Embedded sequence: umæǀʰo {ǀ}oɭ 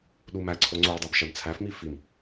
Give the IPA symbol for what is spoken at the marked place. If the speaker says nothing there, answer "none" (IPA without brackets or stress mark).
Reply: ŋ͡ǀ